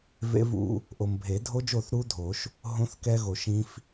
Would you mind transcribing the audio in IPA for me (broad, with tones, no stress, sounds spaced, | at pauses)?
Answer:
v ḛ˦˥ v ṵ˦˥ | ʔ o˨ m bʱ e˨˩˦ dʱ o˦˥ d͡ʒ o˥˩ θ ɾ u˦˥ dʱ o˨˩˦ ʃ | ɦ õ˦˥ θ k ɛ˦˥ ɣ o˨ ʃ ĩ˦˥ f